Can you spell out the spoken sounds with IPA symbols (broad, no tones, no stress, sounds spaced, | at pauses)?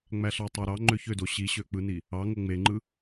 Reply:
ŋ͡m æ ɬ ɑ tˤ ɑ ɾ ɑ ŋ͡ǃ ø ç ø d o ɕ i ɕ ø k͡p ɯ n i | ɑ ŋ o ŋ͡m e ŋ͡ǃ ɯ